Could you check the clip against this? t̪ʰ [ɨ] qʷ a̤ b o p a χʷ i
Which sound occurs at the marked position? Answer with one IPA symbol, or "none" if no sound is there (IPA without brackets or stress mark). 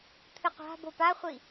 ɨ